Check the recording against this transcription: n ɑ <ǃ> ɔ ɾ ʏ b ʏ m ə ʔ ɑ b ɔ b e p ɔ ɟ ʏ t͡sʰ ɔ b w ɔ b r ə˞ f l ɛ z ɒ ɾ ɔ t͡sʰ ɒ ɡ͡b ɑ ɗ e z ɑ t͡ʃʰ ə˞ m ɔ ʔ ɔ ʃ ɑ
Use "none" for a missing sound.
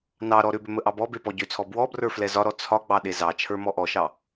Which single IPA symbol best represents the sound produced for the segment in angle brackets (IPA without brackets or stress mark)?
ɾ